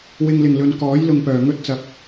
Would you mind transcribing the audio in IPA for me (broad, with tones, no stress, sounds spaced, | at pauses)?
w ɪ˨ ŋ l ɪ˨˩ ŋ l ɵ˨ n k ɔː˨˥ j l ʊ˨ ŋ p œː˨˩ ŋ ɵ˥ t̚ t͡s ɐ˨˥ p̚